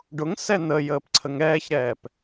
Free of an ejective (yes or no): yes